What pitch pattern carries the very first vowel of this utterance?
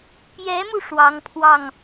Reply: rising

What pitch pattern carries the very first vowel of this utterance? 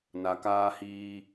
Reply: low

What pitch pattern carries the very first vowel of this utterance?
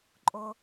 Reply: high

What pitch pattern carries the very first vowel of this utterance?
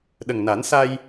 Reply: low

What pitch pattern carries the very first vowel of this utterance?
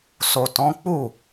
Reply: low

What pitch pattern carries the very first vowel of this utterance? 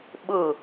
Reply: falling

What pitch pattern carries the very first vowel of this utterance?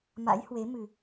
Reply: rising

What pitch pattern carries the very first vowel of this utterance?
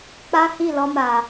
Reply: high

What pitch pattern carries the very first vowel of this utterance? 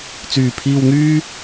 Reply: low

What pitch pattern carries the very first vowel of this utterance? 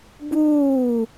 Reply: falling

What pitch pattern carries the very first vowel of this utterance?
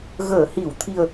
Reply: low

